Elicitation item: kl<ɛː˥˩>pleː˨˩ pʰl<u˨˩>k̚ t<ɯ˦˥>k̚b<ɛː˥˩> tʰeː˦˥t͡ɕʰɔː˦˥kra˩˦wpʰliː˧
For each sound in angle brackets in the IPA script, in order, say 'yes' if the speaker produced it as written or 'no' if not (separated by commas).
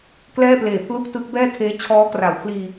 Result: yes, no, yes, yes